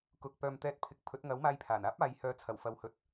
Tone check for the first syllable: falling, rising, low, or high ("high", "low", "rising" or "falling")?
rising